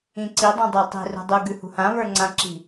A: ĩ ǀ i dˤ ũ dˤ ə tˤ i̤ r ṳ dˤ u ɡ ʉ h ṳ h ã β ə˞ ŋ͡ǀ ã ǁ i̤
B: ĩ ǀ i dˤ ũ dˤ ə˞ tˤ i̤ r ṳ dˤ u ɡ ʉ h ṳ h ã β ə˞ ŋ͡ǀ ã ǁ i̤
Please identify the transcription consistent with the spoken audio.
B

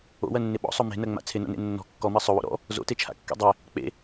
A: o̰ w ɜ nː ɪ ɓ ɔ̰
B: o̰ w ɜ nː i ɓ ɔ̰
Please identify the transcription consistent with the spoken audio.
A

